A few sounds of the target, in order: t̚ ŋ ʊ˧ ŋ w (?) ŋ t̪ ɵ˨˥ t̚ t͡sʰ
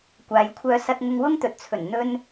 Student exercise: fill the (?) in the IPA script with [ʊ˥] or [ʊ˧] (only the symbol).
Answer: ʊ˥